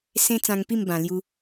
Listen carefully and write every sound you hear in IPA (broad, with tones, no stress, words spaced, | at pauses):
sẽ˦t͡sã˧ŋpi˥˧m bã˨˩lju˧